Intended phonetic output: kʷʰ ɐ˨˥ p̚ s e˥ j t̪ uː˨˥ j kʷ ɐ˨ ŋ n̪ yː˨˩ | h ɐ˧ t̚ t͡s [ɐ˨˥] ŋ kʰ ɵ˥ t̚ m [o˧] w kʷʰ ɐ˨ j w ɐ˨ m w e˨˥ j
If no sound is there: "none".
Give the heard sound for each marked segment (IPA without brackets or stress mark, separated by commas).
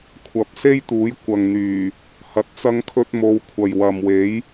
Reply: ɐ˥, o˧